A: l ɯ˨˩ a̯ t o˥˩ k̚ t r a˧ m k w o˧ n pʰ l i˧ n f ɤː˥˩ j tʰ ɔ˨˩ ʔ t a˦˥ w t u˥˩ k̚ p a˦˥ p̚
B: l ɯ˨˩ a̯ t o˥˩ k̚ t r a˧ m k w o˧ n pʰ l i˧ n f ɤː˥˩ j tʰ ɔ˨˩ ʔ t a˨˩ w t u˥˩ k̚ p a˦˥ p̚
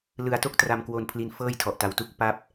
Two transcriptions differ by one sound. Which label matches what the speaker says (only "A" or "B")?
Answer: B